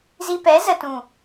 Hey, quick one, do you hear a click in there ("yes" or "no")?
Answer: no